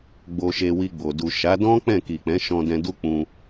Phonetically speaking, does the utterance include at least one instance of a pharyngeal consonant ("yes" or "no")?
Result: no